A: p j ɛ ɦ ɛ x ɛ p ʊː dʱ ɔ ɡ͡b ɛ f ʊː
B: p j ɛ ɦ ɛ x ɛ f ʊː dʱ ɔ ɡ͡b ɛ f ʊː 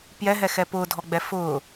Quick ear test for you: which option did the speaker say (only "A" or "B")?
A